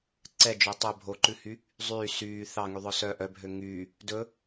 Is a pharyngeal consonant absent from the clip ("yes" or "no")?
yes